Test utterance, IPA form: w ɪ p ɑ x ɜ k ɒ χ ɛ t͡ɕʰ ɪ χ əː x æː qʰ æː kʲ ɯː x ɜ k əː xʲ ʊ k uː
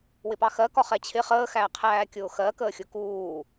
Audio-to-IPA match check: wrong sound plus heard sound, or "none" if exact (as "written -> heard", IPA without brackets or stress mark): ɯː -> ʊː